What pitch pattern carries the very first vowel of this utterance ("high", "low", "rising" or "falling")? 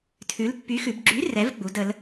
rising